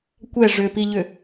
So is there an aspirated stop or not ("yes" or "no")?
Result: no